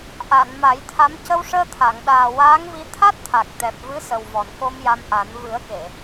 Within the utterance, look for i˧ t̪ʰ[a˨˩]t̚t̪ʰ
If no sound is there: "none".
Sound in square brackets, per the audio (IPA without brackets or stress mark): a˦˥